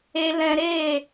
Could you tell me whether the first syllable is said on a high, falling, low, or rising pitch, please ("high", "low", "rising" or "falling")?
low